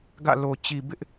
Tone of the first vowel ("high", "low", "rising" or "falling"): falling